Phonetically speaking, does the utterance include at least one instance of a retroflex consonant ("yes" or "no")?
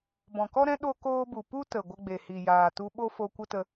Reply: no